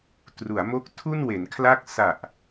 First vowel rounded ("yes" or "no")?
yes